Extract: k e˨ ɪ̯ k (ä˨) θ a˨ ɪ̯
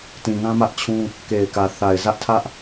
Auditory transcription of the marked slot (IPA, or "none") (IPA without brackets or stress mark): ä˨